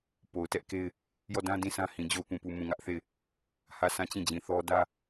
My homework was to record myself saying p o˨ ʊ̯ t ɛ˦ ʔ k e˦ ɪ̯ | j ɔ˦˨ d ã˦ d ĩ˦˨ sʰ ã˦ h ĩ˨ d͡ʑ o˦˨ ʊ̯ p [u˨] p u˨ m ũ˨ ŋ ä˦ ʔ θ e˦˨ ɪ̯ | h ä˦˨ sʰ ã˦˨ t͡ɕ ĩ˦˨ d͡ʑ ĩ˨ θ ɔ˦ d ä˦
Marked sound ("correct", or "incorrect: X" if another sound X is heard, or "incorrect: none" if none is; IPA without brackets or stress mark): incorrect: ũ˨